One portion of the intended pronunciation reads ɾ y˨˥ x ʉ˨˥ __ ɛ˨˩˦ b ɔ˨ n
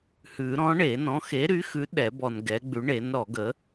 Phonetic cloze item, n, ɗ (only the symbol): ɗ